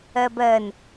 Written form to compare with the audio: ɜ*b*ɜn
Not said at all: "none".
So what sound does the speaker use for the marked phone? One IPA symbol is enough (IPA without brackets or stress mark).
b